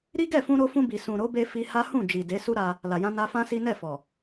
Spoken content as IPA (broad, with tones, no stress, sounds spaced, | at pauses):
ɾ i˦ ɡ ɛ˦˨ f ũ˧ ɾ o˧ f ũ˧ b i˨ s ũ˨ ɾ o˨˦ b e˧ f i˧ h a˦ h ũ˦˨ d͡ʒ i˨ d e˨˦ s u˦ ɾ a˧ | l a˨ j ã˧ n a˧ f ã˦ s i˦ n ɛ˦˨ f ɔ˨